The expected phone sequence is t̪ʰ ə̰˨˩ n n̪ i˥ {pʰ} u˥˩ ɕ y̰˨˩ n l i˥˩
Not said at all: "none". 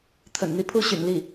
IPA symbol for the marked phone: pʰ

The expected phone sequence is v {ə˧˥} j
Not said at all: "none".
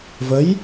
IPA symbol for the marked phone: ə˧˥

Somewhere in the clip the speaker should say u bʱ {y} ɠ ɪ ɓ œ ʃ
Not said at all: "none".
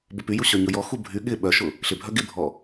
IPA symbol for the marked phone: y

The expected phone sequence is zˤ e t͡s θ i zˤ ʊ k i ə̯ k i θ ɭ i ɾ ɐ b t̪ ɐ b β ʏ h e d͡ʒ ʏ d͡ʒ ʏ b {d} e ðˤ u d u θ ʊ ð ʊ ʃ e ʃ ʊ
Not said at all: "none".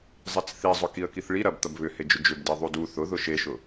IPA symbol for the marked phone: d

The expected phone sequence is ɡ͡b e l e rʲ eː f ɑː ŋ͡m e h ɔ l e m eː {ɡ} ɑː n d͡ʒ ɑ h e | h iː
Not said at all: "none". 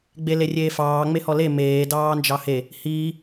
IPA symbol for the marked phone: d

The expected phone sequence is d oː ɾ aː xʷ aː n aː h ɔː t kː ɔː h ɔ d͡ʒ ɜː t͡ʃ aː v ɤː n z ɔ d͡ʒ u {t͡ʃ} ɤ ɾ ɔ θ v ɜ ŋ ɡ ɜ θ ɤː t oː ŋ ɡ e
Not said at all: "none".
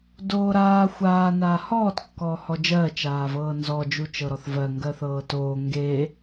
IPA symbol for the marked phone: t͡ʃ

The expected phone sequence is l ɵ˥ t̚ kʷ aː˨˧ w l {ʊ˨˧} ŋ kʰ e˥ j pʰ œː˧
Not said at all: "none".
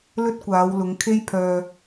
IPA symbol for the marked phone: ʊ˨˧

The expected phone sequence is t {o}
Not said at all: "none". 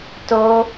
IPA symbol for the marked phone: o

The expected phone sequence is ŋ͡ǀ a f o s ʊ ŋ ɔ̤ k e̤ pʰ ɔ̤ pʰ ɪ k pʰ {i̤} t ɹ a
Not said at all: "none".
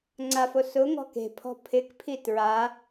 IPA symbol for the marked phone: i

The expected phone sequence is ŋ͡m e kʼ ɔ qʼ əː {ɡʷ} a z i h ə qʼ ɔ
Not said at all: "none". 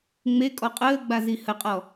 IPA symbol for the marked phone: ɡ͡b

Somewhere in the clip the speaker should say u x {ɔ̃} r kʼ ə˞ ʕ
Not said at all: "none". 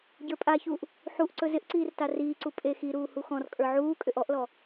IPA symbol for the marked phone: ɔ̃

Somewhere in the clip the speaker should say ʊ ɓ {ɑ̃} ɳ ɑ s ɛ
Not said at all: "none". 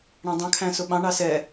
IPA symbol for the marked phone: ɑ̃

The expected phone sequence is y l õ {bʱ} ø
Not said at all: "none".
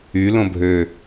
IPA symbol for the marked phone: bʱ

